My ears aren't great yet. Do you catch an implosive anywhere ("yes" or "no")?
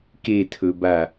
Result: no